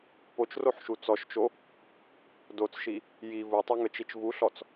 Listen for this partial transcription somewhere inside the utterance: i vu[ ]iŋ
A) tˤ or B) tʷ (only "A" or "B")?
A